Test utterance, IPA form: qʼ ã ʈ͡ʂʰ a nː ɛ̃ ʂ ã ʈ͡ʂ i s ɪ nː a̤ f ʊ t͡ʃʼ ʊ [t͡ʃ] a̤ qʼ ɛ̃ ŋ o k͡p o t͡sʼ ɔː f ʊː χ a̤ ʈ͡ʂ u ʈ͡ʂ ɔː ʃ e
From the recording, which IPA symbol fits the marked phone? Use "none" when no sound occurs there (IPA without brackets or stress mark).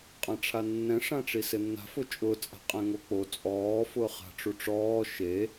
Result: t͡sʼ